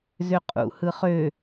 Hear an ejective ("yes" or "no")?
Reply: yes